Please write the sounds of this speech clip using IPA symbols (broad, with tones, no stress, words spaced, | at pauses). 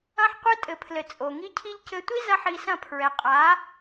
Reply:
ɐ̃˦ħqʷɘ˦tʼɘ˨pʰlɘ˨ t͡sʼo˨ŋi˦cʰi˦ʎ cɘ˦ tʷi˦ zɐ˦ħi˧sɐ̃˦˨ pʰɹɛ˨qʼa˨˦